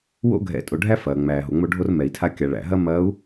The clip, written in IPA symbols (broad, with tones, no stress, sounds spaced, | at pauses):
w o̰˦ ɡʱ ɛ̰˨˦ tʼ o˨ ɖʱ æ˦ f ɐː˨ ŋ͡m æː˨ ɦ o˨ ŋ͡m o˦ ɖʱ o˦ r m ɛ˨ i̯ tʰ a˦ kʲ a˨ ɭ æ̰˨ ɦ ɐ˦ m ɐː˨˦ u̯